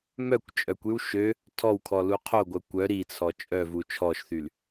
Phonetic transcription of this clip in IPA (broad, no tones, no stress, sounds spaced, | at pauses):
m œ kʷ t͡ʃʼ œ kʷ y w ʃ ø | tʰ ɔ w kʰ ɔ l u qʰ o ɡʷ œ kʷ œ ɾ i t͡sʰ ɔ t͡ʃʼ œ v u t͡ʃʰ ɔ ʃ θ y l